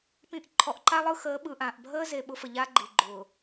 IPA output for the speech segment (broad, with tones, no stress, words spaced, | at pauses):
pĩ˨˦ʔǃʰɔ˨ʔǃa˦ lˠɯ˦xəː˨˦ ɓɯ˨ʔã˨ʔ bʱəː˦ze˨ ɓʊ˦fə˨ʎa˦ ɡ͡ǃi˨ɡ͡ǃʊː˨